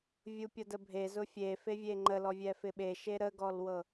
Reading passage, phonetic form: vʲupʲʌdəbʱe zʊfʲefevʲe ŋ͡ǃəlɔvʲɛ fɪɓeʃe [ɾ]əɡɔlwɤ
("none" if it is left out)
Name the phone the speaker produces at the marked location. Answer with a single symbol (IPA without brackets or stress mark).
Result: ɾ